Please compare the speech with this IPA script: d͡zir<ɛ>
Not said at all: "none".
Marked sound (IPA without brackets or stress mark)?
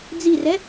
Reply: ɛ